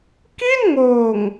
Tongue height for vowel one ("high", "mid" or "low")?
high